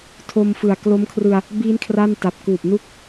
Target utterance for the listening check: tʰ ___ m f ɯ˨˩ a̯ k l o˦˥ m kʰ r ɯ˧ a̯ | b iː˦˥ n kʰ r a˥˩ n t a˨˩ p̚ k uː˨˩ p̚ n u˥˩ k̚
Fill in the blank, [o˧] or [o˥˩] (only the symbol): o˧